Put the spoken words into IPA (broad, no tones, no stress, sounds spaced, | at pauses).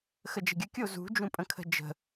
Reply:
x ə d͡ʒ ə̤ ɡʲ ə kʲ o z ṳ d͡ʒ ũ pʼ ə̃ kʰ ə̤ d͡ʒ ə̤